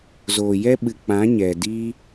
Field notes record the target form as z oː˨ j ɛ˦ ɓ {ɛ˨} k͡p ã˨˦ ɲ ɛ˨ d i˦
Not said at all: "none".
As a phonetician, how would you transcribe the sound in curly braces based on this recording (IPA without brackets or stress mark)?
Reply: ɨ˨